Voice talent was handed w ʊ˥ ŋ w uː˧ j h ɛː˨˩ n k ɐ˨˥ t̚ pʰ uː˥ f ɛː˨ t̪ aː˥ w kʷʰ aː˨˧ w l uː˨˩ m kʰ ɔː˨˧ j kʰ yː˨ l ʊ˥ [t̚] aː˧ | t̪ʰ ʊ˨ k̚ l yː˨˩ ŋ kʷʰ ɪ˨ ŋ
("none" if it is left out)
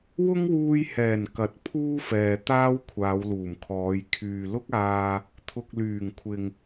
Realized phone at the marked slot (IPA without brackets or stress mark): k̚